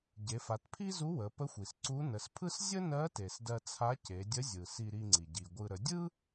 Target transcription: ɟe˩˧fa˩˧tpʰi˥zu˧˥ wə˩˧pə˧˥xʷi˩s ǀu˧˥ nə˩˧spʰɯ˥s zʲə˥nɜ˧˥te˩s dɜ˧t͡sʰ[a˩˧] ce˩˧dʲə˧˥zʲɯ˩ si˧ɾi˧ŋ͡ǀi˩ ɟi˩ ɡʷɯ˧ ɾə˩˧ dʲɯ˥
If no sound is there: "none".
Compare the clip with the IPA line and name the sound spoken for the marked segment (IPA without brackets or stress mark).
a˧˥